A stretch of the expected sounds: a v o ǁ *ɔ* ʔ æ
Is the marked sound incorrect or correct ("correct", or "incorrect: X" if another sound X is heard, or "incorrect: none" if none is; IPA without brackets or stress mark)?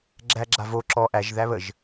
correct